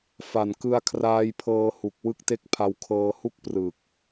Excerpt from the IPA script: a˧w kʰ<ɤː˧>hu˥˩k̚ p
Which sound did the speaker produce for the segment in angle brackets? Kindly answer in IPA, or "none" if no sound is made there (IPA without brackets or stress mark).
ɤː˧